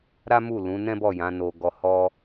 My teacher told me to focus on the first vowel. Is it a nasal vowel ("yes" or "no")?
no